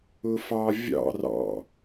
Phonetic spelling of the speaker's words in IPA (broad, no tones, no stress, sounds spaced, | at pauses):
ʊ f ɑ vʲ ɑ̰ r ɑ̰